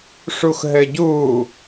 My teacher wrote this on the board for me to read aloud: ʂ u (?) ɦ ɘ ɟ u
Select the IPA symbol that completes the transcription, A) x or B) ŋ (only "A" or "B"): A